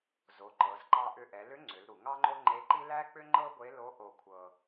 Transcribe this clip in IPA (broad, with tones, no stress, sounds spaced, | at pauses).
z o˩˧ ǃ ɤ˩˧ z ǃ ɑ˧ ʔ ʏ˧ ʔ ɛ˩˧ l ʏ˧˥ ŋ͡ǀ ʏ˩˧ l ɾ u˩ ŋ ɑ˥ ŋ͡ǃ o˥ ŋ͡ǃ e˧˥ ǃ i˥ l æ˥ k͡p ʏ˥ ŋ͡ǃ ɤ˥ ɡʷ e˧˥ l o˧˥ ʔ o˧ kʷʰ ɤ˧